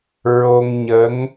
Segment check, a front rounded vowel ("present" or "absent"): absent